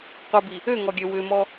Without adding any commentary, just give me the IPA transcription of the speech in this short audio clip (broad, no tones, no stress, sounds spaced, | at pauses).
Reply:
qʷ ə b i | ø ŋ ɔ ɡʲ ø w ʏ m ɔ